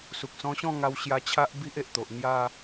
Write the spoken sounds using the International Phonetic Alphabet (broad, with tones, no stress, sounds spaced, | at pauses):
s u˨ k̚ s ɔ̃˧ ɕ ɔ̃˥˧ ŋ a˧ w ɕ j a˧ t͡ɕʰ a˦ ʔ b i˦ ʔ e˨ ʔ t̪ o˨ ʔ n̪ j a˥˧